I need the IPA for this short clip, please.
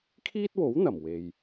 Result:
kʰiː˥t̚wo˨˥wn̪ɐ˨˩m we˨j

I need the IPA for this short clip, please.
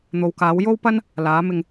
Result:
n̪o˨wkaː˨˥w jo˥wpɐ˥n | laː˨˥mɪ˧ŋ

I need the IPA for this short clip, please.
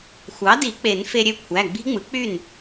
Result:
xʷɑ˩˥di˨˩˦ k͡pe˨˩˦nfe˧ɾʲø˥˩ kʷʰæ˩˧˩ɡ͡bi̤˦˥ŋ͡mɯ˩˥ k͡py˥˩n

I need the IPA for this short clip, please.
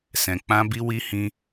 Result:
sɛ̃˧k͡pã˦bi˦wi˦ hĩ˦

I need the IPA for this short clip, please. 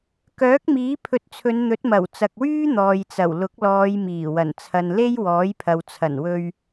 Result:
kœː˨˥k̚miː˨˥pʰɵ˨˥t̚t͡sʰɵ˨˧n n̪ɵ˨˥t̚mɐ˨˩wt͡sɐ˨k̚wyː˥ n̪ɔː˨jt͡sɐ˨˩w lʊ˨˥k̚lɔː˨˧jmiː˨˩ wɐ˨˩nt͡sʰɐ˨nle˥jwɔː˨˥j pʰɐ˨wt͡sʰɐ˨˩n wɵ˧ɥ

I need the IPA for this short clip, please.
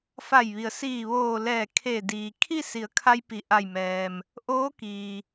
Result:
fa˧˩jʋi˩ə̯siː˧˩ ʋoː˧˩ lɛː˧˩kʰe˧˩ diː˩kʰi˥˨si˩˧ə̯kʰa˧j pi˩ʔa˧˩jmɛː˩m | ʔoː˧˥kiː˩

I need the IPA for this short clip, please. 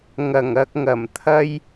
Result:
ŋɐ˨˩ŋɐ˧k̚ŋɐ˨˩mt̪ʰɐ˥j

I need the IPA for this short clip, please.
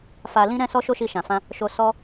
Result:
fa˧ lĩ˧ɾɛ̃˧ sɔ˦ʃo˦ʃi˧ʃã˨ fã˧ | ʃo˧ sɔ˦

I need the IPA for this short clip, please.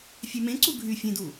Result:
fʲømẽǀu ɡʱy fʲẽdu

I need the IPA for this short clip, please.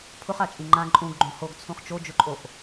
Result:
pʰʊχat͡ʃʼĩ ŋ͡ǃã ǃʼũɡɡ͡ǃõ hoɡt͡sʰũχ t͡ʃod͡ʒʊǃʼoʔ

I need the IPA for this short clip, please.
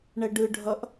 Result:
ɳɛɖɯɖʱʌʔ

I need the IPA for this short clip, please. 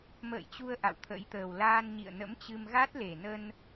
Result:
mə̰ː˧˨jt͡ɕu˧ə̯ ʔa̰˧˨wt̪ʰə̰˧˥jt̪əː˨˩w laː˧nɲḭ˧˨ə̯nə̰˧˥mt͡ɕɨ˧m ɣa˦˥t̚le˨˩nə˧n

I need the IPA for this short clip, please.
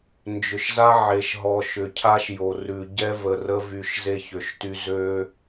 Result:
nd͡ʒʏ˨ʃza˦ ʕe˨ʃɦɔ˨ ʃʏ˨cʰa˦ʃjo˨ rʉ˨ɟɛ˦ və˨rə˦vy˨ʃ ze˦çø˨ʃty˦ zø˦

